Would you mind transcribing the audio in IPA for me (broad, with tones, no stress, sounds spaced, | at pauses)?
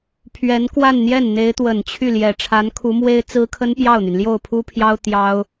pʰ ɥ ɛ˧˥ n k w a˥˧ n n̪ j ɛ˥˩ n n̪ e˧˥ ɪ̯ t̪ w ə˨˩ n t͡ɕʰ y˥˩ l j ɛ˨˩ ʈ͡ʂʰ a˧˥ n kʰ u˧˥ m w e˥ ɪ̯ t͡s ɹ̩˥ kʰ ə˥ n p j ɑ˥˩ ʊ̯ n̪ y˩ n l j o˥˩ ʊ̯ pʰ u˥ pʰ j ɑ˥ ʊ̯ t̪ j ɑ˥ ʊ̯